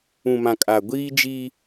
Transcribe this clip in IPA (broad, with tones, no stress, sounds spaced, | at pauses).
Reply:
ũ˨ m ã˨ kʼ a˨ ɡʷ iː˦ d͡ʒ i˦